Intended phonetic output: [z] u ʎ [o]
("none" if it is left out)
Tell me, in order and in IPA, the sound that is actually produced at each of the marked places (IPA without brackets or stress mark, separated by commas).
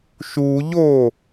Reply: ʃ, o